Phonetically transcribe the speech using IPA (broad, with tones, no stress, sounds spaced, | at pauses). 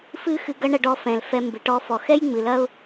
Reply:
f ɨ˥ x ɨ˧ ɡ ɐ˥ ɳ ɐ˧ ɖ ɔ˧ f ɛ̃˩ l f ɛ˧ m b ɨ˩ ʈ ɔ˧ f ɔ˩ x ɛ˥ j ŋ͡m ɨ˩ l ɐ˥ ʊ̯